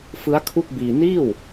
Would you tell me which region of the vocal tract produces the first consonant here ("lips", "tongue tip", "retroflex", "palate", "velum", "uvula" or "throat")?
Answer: lips